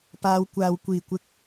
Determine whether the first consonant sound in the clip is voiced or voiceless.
voiceless